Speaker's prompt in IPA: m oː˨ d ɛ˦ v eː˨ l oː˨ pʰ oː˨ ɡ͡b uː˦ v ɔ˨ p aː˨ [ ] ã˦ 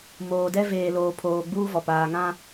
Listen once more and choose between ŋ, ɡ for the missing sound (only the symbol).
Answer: ŋ